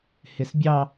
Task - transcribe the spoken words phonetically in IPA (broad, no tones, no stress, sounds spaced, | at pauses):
h ɪ s bʲ ɑ